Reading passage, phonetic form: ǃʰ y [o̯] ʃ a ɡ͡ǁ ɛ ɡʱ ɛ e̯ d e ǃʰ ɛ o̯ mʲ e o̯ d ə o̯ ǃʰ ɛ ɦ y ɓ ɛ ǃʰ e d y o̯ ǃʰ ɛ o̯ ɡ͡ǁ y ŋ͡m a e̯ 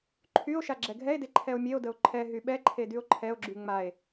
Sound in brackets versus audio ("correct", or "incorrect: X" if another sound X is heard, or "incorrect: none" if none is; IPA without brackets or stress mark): correct